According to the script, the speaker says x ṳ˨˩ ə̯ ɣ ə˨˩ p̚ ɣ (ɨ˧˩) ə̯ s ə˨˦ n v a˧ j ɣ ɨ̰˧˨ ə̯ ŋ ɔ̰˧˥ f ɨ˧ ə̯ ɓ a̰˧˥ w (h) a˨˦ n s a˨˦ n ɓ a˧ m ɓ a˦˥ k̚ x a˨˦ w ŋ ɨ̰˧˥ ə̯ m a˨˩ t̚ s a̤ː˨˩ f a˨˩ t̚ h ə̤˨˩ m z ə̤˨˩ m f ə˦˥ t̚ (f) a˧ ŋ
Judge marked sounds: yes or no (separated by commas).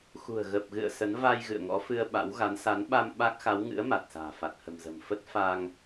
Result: no, no, yes